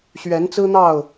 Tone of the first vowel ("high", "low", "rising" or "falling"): rising